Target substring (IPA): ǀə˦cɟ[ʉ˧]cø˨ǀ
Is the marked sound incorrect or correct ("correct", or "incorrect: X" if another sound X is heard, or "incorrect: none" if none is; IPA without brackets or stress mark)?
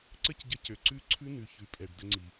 incorrect: ə˧